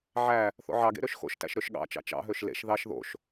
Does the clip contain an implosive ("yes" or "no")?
yes